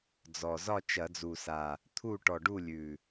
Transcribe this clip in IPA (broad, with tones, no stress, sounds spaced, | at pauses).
d͡z ɔ˨˩ z ɒ˥˨ t͡ʃ ɐ˧˩˧ d͡z u˨˩ s a˨˩ | t̪ʰ u˥˨ ʈ ɔ˨˩ ɖ u˥˨ lʲ ʉ˨˩